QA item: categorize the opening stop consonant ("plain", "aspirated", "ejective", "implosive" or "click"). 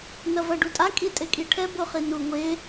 plain